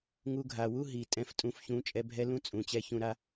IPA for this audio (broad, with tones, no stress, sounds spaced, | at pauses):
ŋ u˧ ɡʱ a˨ w u˦ ɦ i˨ tʼ ɛ̃˧ f tʼ ũ˨˦ f ç ũ˨˦ t͡ʃʼ ɛ˧ bʱ ɛ˦ l ũ˦ t͡sʼ ũ˨ t͡ɕ ɛ˧ ç ũ˧ ɾ a˦